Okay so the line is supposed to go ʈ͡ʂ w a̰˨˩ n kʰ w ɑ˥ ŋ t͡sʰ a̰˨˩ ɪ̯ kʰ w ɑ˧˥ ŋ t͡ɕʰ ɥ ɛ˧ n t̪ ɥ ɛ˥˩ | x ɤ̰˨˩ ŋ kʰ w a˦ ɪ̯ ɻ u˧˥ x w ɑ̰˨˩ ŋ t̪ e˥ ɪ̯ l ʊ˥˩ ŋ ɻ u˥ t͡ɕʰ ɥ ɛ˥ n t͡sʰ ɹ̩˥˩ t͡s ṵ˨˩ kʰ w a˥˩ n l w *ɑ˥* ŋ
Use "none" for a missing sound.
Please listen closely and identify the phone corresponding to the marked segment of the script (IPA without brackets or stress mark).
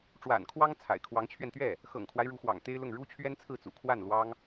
ɑ˥